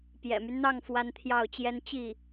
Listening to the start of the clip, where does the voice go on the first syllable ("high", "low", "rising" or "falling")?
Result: low